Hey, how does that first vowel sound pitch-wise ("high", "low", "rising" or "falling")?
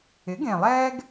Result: rising